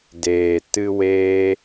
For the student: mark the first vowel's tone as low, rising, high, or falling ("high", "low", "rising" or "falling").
low